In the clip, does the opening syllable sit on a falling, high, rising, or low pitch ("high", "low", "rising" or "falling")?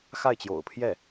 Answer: falling